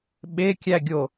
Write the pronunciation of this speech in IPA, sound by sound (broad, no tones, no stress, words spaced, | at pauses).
ɓekʲæɡʲo